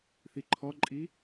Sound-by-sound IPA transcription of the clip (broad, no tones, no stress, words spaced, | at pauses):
θiǃʰɔǃʼi